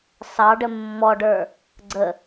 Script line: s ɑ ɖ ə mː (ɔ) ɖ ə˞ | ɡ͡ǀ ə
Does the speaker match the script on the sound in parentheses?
yes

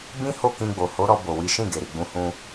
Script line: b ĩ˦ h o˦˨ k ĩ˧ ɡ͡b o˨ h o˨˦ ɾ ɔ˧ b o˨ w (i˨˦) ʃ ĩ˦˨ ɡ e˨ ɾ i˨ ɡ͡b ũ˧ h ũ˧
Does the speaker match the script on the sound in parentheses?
yes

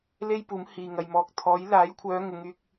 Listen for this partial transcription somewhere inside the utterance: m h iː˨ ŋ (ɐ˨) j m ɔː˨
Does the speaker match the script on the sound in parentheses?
yes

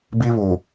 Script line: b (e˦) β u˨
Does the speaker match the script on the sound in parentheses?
no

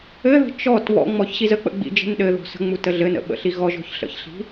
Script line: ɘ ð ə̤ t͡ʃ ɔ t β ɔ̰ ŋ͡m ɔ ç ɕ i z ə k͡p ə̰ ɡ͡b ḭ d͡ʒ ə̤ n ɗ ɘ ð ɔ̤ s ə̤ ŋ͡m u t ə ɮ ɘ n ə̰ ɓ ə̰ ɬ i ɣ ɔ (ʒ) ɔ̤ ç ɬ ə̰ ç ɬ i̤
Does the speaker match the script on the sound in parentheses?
yes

